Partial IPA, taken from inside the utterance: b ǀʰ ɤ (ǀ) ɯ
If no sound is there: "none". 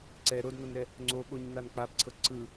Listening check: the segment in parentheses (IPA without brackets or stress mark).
ǀ